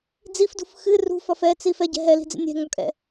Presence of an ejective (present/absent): present